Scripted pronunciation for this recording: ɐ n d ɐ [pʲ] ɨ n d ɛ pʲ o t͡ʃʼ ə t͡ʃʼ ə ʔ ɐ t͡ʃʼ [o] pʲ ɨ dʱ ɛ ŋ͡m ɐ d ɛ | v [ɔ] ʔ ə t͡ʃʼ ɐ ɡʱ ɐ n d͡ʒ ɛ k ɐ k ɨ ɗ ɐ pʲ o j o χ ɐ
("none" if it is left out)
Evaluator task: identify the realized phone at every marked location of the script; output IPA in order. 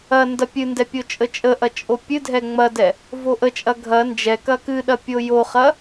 pʲ, o, o

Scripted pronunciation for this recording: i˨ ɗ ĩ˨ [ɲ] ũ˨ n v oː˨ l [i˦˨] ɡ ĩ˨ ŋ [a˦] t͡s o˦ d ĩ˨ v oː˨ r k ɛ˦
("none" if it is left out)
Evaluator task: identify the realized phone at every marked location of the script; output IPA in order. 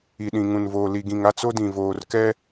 ŋ, i˨, a˦

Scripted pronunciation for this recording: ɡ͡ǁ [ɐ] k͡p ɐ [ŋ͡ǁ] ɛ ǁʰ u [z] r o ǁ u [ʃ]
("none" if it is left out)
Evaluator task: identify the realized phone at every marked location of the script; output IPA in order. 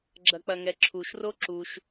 ɐ, ŋ, ʃ, ʃ

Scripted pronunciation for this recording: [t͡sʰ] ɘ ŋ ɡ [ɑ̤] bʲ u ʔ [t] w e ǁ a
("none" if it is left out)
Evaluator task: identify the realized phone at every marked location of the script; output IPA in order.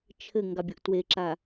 t͡ʃʰ, ɑ, t

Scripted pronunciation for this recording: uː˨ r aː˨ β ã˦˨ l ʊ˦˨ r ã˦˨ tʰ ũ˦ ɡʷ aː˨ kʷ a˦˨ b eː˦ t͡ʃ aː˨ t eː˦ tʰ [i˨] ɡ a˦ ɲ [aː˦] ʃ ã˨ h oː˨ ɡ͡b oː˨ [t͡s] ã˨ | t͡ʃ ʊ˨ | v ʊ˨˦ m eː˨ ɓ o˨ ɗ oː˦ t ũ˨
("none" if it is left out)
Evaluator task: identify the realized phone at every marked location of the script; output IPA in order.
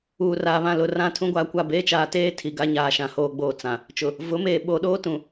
i˨, aː˨, t͡s

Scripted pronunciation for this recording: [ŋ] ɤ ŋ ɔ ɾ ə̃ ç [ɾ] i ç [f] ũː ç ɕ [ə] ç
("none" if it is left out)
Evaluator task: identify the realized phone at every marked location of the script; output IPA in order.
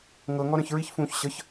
ŋ, ɹ, f, ə

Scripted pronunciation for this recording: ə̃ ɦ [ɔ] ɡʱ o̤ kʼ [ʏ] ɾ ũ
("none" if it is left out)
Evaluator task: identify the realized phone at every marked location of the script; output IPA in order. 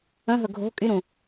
ɵ, y

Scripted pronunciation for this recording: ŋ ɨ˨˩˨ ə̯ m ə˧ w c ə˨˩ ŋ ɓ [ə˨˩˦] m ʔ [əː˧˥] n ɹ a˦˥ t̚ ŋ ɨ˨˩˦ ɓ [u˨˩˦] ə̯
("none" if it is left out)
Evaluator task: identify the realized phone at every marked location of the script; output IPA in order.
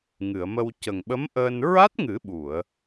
ə˧˥, əː˧, u˨˩˨

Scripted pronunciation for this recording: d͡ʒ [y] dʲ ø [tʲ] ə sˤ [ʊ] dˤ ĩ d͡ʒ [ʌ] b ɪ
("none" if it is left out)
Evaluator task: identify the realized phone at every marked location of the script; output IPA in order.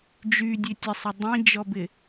y, tʲ, ʊ, ɔ

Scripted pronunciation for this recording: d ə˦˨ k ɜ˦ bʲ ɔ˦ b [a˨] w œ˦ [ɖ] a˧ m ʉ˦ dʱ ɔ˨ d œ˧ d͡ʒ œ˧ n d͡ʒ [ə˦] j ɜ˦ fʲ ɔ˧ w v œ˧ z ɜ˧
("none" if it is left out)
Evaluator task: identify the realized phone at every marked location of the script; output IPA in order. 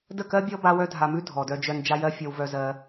a˦, dʱ, a˦

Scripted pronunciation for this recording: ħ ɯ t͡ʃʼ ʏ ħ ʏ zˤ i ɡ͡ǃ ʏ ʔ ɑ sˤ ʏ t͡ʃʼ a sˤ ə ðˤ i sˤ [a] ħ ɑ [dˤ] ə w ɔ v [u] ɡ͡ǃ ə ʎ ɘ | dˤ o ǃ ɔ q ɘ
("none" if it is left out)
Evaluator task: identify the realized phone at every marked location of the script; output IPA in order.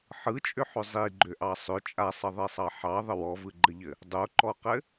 ɑ, ðˤ, ɯ

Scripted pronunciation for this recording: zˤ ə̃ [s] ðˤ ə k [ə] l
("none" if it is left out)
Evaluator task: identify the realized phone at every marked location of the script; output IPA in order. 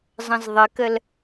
z, ə

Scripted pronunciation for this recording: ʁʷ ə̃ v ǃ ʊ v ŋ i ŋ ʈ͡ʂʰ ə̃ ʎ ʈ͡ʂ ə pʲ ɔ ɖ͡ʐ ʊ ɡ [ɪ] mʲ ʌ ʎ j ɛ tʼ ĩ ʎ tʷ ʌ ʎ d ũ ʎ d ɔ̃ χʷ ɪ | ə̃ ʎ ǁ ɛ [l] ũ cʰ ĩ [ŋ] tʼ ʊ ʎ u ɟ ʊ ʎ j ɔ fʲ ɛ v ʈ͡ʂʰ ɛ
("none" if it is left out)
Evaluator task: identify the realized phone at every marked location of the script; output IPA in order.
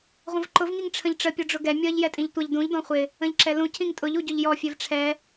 ɛ, l, ŋ

